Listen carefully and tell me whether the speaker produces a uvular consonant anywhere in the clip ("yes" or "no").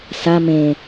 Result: no